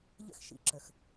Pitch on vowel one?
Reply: high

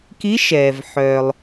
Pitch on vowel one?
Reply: rising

